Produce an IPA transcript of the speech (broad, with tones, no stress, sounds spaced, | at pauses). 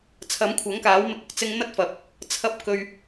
t͡sʰ ɐ˨˥ m kʷʰ ɐ˨˥ ŋ k aː˨˥ w m ɪ˧ k̚ ʊ˥ k̚ t͡s ɪ˧ ŋ n̪ ɐ˥ t̚ f ɐ˨ p̚ | t͡sʰ ɐ˥ p̚ k ɵ˧ ɥ